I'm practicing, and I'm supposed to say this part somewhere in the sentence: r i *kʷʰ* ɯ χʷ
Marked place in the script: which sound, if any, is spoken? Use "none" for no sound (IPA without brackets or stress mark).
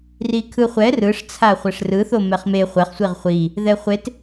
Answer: kʰ